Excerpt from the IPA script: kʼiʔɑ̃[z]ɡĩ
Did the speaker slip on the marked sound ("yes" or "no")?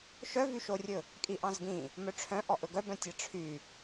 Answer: no